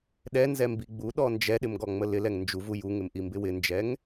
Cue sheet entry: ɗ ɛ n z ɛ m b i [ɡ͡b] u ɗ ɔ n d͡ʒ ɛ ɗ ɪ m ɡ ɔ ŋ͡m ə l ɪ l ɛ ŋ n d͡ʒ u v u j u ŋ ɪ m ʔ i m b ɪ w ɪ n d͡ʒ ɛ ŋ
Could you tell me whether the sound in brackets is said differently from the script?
no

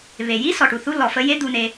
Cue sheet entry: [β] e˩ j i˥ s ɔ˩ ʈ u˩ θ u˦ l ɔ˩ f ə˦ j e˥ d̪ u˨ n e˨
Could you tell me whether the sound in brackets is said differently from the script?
no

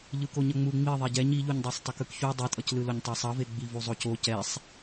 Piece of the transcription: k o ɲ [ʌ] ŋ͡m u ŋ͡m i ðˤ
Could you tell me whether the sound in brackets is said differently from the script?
no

